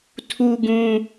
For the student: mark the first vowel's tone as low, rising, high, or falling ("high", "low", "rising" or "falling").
high